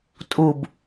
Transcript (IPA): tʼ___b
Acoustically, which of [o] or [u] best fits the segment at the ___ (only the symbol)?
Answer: u